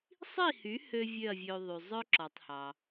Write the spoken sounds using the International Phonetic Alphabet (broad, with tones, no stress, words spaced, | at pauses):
sˤi˥˩hy˩˥ hø˥vʲø˥˩ɐ̯vʲø˧ðˤy˩ zˤœ˥ ǁɔ˩tˤhɑ˩